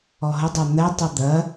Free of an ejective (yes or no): yes